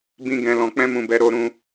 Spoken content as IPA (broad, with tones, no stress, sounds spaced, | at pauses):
b ĩ˦ ɡ ɛ̃˧ l ɔ̃˧ k͡p ɛ̃˦ m ũ˧ b ɛ˧ ɾ o˧ ɾ ũ˧